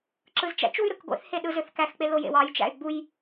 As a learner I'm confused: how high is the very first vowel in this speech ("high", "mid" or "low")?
high